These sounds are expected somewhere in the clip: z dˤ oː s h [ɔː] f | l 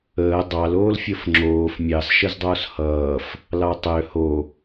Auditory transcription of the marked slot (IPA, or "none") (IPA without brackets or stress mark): ʌː